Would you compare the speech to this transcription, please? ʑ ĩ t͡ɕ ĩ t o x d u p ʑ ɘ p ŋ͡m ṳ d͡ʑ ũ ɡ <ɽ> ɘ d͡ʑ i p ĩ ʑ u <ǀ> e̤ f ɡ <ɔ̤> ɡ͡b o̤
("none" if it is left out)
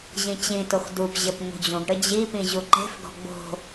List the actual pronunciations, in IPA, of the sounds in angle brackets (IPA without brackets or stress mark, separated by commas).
ɽ, ǃ, ɔ̤